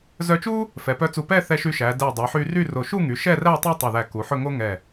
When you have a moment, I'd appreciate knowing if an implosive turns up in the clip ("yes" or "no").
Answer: no